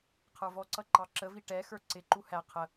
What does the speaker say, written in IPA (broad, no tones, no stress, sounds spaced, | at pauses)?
qʰ ə˞ v ɔ ǀ ʌ ǃ ɑ ǁ ə v i ʈ ɛ x ə˞ ǀ ɪ ǃ u h æ qʰ ə